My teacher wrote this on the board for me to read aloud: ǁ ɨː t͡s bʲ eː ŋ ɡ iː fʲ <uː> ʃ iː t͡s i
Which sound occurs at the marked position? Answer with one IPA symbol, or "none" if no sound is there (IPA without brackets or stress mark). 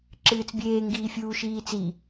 uː